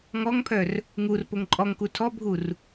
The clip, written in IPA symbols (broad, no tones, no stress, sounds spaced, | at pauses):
ŋ ɔ ŋ pʰ œ r | ŋ u r p o ŋ ǃʼ ɔ ŋ k u tʰ ɔ bʱ u r